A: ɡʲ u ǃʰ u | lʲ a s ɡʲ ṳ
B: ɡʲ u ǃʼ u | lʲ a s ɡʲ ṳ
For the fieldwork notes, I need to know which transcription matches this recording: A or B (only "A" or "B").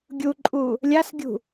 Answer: B